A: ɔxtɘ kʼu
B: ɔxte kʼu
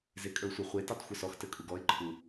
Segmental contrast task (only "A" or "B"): A